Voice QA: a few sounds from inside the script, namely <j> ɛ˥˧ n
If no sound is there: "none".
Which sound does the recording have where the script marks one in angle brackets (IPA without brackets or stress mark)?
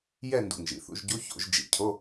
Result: j